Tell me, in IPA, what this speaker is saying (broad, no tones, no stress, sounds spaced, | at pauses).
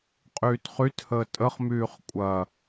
qʼ yː t χ y t h əː tʼ ə χ m yː χ kʷʼ ɐ